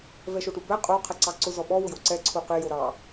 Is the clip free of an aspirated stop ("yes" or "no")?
no